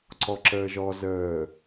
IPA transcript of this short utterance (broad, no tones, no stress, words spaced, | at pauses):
ǀɔǁəːʒɔ zəː